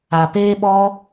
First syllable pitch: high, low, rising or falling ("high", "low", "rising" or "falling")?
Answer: low